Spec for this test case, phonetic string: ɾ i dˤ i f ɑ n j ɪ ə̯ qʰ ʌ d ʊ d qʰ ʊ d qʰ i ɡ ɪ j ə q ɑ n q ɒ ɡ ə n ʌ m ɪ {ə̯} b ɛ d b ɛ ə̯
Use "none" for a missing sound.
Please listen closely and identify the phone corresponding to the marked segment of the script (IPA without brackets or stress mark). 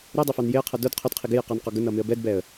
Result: ə̯